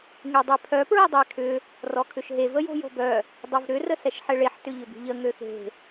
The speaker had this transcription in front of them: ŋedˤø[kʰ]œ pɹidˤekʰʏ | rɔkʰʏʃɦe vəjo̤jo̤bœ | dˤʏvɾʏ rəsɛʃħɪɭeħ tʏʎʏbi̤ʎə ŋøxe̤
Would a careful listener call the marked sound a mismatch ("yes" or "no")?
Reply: yes